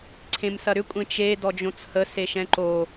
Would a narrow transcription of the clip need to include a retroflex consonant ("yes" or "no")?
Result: no